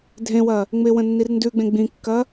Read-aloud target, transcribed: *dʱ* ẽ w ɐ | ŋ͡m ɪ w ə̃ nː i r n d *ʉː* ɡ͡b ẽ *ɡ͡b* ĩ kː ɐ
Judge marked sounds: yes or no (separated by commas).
yes, no, yes